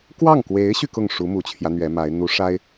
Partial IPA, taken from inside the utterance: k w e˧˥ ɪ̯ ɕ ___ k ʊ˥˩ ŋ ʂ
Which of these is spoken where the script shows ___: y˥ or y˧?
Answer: y˧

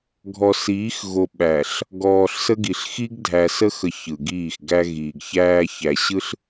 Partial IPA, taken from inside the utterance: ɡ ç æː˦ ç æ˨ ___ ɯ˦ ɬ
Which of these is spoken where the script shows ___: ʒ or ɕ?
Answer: ɕ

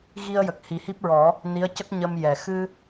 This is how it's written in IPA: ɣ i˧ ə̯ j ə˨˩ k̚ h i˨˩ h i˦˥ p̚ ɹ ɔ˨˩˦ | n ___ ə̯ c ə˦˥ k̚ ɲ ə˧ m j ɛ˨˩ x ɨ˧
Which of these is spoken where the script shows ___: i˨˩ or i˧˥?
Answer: i˧˥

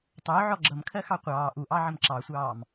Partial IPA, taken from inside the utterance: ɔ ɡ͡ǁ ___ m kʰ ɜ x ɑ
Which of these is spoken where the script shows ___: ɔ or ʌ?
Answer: ʌ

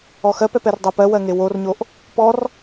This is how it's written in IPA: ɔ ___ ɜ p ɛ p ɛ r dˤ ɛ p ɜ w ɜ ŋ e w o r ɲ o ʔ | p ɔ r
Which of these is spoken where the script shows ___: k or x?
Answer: x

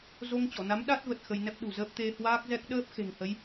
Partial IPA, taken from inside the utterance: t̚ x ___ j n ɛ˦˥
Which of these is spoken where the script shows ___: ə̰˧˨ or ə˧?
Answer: ə˧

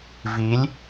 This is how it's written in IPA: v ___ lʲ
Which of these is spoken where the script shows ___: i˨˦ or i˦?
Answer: i˨˦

